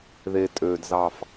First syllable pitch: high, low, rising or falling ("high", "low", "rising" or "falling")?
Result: low